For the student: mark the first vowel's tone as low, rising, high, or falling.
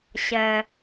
low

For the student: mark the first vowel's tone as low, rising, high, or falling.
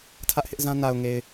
high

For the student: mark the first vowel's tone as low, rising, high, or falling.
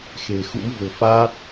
low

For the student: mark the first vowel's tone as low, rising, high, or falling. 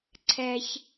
low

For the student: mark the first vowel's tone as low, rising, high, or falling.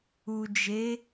low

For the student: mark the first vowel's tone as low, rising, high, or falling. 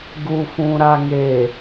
low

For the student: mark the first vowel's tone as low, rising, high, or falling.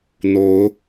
rising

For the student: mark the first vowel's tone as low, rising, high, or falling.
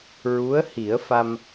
rising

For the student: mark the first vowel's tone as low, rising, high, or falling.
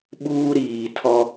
high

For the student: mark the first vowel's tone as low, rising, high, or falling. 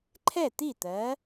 falling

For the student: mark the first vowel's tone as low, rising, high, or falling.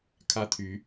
high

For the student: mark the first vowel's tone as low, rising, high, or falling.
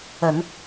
low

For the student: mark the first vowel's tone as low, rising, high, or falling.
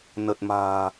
low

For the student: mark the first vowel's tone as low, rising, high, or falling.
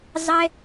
high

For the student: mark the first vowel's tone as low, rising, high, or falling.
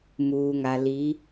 low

